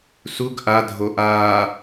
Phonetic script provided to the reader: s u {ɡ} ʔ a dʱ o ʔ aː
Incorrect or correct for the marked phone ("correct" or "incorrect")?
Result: correct